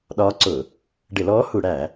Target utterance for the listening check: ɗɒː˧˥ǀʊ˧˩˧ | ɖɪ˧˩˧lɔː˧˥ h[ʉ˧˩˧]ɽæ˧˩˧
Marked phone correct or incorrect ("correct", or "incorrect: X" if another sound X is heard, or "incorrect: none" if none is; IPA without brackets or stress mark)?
incorrect: u˧˩˧